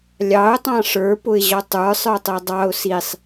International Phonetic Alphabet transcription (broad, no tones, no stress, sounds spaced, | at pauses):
lʲ ɑ ʊ̯ tˤ ɑ̃ ʂ ə˞ p ʊ ɪ̯ ʑ ɔ tˤ ə˞ sˤ ə˞ tˤ ɛ dˤ ɑ ʊ̯ s i sˤ